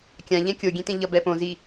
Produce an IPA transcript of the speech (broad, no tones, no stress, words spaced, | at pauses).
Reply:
kʲã ʎɛ̃kʲo ɡʲẽtẽʎʌ bɛpõzi